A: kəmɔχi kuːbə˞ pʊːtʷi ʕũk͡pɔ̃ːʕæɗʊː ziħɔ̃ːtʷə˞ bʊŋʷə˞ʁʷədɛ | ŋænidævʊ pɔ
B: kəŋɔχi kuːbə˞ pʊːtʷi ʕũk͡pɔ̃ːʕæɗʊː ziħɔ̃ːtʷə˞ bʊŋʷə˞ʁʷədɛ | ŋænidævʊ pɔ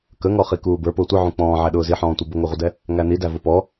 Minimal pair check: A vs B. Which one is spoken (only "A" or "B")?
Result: B